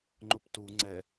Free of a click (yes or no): no